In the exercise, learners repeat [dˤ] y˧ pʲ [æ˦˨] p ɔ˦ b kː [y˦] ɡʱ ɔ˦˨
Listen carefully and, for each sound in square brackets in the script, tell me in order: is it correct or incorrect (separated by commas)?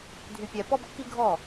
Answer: incorrect, incorrect, incorrect